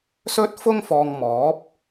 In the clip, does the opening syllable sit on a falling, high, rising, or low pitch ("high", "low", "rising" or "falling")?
high